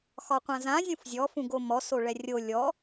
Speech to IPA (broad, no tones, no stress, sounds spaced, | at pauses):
x ɒ qʷ ã z ã zʲ ũ f zʲ ɔ f ũ ɡ o m ɔ s o ɭ ɛ rʲ o lʲ ɔ